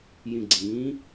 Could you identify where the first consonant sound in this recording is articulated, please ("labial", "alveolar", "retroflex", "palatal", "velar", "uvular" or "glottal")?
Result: palatal